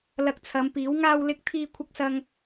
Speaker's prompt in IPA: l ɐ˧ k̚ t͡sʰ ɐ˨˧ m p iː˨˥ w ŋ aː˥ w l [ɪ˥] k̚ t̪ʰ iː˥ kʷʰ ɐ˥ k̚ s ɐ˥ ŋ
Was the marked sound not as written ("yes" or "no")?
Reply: no